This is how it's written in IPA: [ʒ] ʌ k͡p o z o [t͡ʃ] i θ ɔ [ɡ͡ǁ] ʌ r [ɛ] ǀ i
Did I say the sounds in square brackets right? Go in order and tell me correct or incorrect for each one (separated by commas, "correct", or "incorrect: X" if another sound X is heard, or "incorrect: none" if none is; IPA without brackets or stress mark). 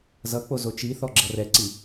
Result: incorrect: z, correct, correct, correct